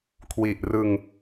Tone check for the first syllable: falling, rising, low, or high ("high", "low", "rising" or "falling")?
low